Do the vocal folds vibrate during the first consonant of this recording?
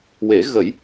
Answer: yes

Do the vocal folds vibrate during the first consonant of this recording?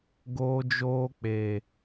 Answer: yes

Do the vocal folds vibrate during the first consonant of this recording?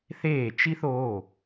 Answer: no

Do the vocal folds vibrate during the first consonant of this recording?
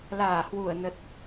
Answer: yes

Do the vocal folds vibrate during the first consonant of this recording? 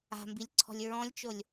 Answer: yes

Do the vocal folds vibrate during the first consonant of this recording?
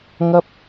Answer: yes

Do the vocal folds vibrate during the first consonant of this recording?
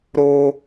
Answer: yes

